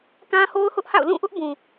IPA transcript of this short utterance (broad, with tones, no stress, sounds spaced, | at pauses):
k ã˦ h o˦ ʊ̯ h ʊ˦ ʔ h a̰˦˨ ʊ̯ l ũ˦˨ ʔ ʊ˦ ʔ b ũ˨